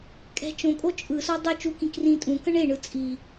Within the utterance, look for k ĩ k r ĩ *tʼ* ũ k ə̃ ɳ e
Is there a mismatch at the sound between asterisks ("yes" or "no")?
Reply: no